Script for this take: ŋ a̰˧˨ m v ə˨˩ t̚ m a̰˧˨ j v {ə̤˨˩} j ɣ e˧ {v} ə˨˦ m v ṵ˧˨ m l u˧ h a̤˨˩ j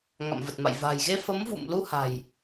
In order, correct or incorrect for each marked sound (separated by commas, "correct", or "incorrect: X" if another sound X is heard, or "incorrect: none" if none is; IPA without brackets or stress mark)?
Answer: incorrect: a̤˨˩, incorrect: f